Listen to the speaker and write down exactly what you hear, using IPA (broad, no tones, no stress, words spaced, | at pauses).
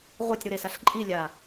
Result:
ʁʷetʲɾuɾesaɬ ǃʼilʲa